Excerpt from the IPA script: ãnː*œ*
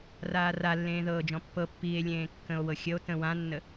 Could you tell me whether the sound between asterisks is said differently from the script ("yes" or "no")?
yes